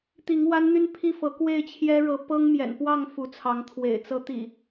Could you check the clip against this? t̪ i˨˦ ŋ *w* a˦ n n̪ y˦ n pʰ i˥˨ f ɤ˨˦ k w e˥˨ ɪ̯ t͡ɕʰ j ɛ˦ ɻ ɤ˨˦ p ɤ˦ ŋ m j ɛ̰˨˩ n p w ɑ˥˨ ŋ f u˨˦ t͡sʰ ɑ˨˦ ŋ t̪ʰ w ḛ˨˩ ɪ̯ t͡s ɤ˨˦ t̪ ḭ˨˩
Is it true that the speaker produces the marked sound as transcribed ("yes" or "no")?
yes